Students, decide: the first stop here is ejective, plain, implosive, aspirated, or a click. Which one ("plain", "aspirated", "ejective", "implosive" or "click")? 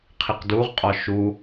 aspirated